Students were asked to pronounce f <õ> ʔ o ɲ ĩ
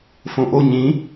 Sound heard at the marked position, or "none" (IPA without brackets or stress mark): õ